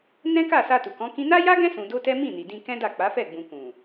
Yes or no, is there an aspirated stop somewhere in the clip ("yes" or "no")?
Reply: no